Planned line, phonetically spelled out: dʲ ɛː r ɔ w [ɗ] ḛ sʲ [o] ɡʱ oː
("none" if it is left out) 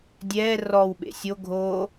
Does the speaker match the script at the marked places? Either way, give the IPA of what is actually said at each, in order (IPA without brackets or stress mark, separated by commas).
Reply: ɓ, o